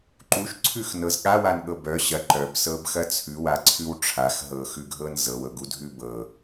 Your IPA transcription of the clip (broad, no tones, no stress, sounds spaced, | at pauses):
ǃ u ʃ ǀʰ ʉ x n ɤ z ɠ a w a n ɠ ɤ b œ ɕ ɐ ǃ œ b s ɤ b x ɐ t͡sʰ ʉ w a ǀʰ ʉ w ʈ͡ʂʰ a x ɦ ɤ x ʉ ɡʱ ɤ n z ɤ w ɤ ɡ u dʱ ʉ b ɤ